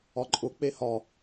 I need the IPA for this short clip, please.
ɒ ǃʼ ʊ k͡p e h ɒ

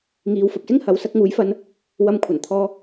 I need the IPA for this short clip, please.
ŋ iː˨˧ w f ɐ˨ p̚ s ɪ˥ ŋ h ɐ˨˥ w s ɐ˨˥ k̚ ŋ uː˨˥ j f ɐ˧ n | w ɐ˧ m kʷʰ ɐ˨˩ n t̪ʰ ɔː˧

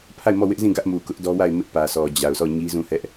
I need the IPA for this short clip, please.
pʰ a˦˨ ɪ̯ m ɔ˦˨ w ɪ˦ ʔ z ĩ˦˨ ɡ ä˦ ʔ m u˨ k ʊ˦ ʔ d ɔ˦ w a˦˨ ɪ̯ m ɪ˦ ʔ p ä˨ sʰ ɔ˨ d͡ʑ a˨ ʊ̯ sʰ ɔ˦˨ ɲ i˦ z ũ˦˨ h ɛ˦ ʔ

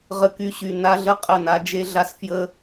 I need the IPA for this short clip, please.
ʁ ə˦ k y˦ ɕ y˨ n a˦ ɮ ə˦ qʼ ə˦˨ n a˦ d͡ʒ e˦ ɮ a˦ s f j ə˦

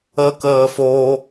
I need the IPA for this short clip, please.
ə k əː f o

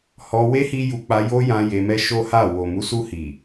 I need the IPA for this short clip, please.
h ɔ˧ w e˦ h i˦ j u˧ k͡p a˧ j o˦ j ã˧ j e˧ m ɛ˦ ʃ o˦ h a˦˨ w o˨ m u˨˦ s u˧ h i˨

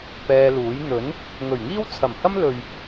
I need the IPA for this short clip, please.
p ɛː˧ l uː˨˥ j n̪ ɵ˨˥ n | ŋ ɵ˨˩ ɥ ŋ iː˥ w t͡sʰ ɐ˨˩ m h ɐ˥ m l ɵ˨ ɥ

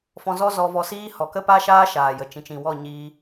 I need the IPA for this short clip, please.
f ɔ̃˧ z ɔ˦ z ɔ˧ v ɔ˧ s iː˦ h ɔ˨ k ə˦ p a˦ ʃ aː˦ ʃ aː˨ j ə˨ t͡ʃ ĩ˨ t͡ʃ ĩ˨ w ɔ˦˨ ɲ iː˧

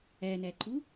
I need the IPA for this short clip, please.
æ n æ ǃ u

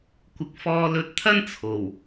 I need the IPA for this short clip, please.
kʷ ɪ˨˥ k̚ f ɔː˧ l ɵ˧ t̚ t̪ʰ ɐ˥ n t͡sʰ o˨˩ w

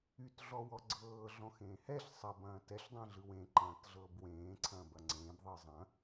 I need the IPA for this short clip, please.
y t ɮ ɔ w ɔ ɡ͡ǀ ɤː ɮ ɔ̃ x ẽː h ɛ ɬ sˤ ɐ b ɐ̃ː t ɛ ɬ dˤ ɛ̃ ɮ ɯ w ẽ ǃ ɐ̃ː t ɮ ɤː b w ẽː ǀʰ ɐ̃ː b ɐ ŋ͡ǀ ẽː b ðˤ ɯ zˤ ɐ̃

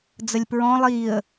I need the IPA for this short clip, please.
d͡z ə lʲ p ɹ ɔ̃ lˠ iː ə̯

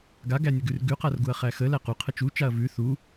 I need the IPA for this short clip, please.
ɡ a ɡ æ nʲ ə ɡ ʉ r ɡ ʉ q a r ɡ u ɐ̯ χ æ x ə l æ q u qʰ ə t͡ʃ u t͡ʃ a ɐ̯ v ʉ θ u

